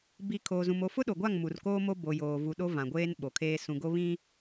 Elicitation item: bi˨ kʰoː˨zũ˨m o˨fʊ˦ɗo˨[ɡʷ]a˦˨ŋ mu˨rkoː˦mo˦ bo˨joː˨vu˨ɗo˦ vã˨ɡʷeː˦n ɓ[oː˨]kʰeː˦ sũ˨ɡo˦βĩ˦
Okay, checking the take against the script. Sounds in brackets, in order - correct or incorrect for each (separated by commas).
correct, incorrect